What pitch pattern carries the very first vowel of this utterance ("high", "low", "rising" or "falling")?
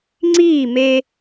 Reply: falling